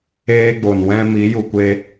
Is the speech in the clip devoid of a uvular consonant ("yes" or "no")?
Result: yes